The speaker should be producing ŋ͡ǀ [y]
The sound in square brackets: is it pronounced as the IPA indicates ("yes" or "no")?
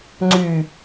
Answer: yes